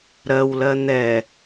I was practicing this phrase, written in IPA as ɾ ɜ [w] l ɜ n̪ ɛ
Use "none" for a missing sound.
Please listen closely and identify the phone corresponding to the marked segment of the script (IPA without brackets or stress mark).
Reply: w